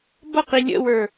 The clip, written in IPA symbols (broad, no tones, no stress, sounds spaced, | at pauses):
b ʌ q i lʲ ə̰ w ə˞